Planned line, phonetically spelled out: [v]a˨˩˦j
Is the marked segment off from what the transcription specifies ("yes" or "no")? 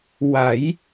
yes